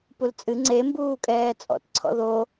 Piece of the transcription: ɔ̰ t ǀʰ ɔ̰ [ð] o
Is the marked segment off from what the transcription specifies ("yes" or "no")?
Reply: no